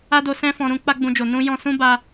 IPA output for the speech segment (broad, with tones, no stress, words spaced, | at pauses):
a˦do˧ sɛ̃˦fɔ̃˧ ɾũ˧ k͡pa˦ɡ͡bũ˧d͡ʒo˨ nũ˧ jɔ̃˧sũ˦ ba˧